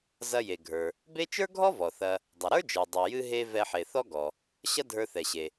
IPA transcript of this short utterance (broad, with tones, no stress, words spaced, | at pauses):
zɐ˧je˩ ɡʱə˞˩ | be˥ t͡ʃə˞˥ɡʱɔ˥ vɔ˩θɐ˧ | dˤɐ˩ɾə˞˥d͡ʒə˞˩ dˤe˩jɨ˧ ɦe˧ vɛ˧ħe˩θɔ˥ɡɔ˩ | ɕɐ˥dʱə˞˧θɛ˩ɕe˩